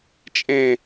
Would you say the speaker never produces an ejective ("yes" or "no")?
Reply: no